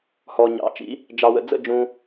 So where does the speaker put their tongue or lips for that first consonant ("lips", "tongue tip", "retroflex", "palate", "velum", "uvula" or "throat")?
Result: throat